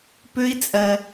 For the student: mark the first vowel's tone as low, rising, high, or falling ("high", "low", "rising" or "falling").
high